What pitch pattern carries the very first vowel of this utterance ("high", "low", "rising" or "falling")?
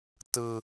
high